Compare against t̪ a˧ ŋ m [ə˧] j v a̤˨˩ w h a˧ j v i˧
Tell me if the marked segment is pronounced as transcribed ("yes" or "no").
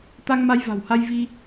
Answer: no